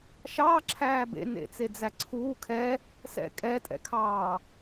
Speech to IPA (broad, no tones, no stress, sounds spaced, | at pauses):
ʃ ɑː ǁʰ æː b ḛ n ḛ t͡s e d͡z æ ǀʰ uː kʰ ɛ | s ɛ̰ kʼ ɛ tʼ ɛ̰ kʰ ɑː